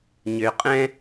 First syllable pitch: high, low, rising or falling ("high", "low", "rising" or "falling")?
low